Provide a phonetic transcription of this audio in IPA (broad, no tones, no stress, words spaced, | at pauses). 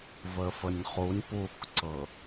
vəfənʲχunʲ pukǀɤ